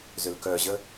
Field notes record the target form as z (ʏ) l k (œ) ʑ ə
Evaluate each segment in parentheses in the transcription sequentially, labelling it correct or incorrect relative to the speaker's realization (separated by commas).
correct, correct